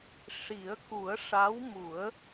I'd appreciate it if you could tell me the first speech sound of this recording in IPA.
ʂ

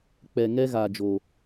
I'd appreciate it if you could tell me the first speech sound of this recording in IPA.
k͡p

